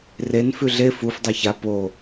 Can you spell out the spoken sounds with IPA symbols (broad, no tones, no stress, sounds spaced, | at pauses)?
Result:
r e n f ʉ ɮ e f u f dˤ a ç a p o